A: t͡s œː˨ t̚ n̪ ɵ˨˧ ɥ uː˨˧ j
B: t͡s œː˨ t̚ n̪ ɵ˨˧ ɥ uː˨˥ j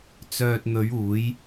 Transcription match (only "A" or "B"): A